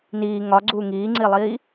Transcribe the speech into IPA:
niː ŋɒɡ͡ǀuː ŋiːŋ͡ǀilˠiː

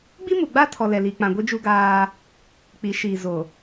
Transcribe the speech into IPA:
ɡ͡bi˦mu˨ɡ͡ba˦tʰɔ˨ lɛ˨li˨k͡pã˨ɡʷi˦ d͡ʒu˦ɡaː˦ | k͡pi˨˦ʃiː˨zo˨

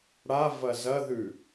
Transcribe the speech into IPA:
ɽa vɐzɐðʉ

